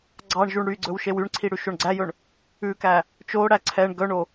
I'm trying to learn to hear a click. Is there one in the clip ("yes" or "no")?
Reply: yes